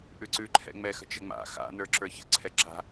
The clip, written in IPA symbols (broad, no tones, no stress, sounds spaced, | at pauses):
ʔ ʉ ǀ ʉ ǃʰ ɛ̰ ŋ͡m ɛ x ə̤ t͡ʃ ə ŋ͡m a̰ x a̰ n ə˞ ǁ ə˞ ç ə̰ ǀʰ ɛ ǁ a̤